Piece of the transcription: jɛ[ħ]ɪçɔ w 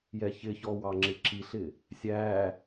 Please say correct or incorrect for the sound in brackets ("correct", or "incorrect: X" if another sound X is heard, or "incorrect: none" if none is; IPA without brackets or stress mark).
incorrect: ç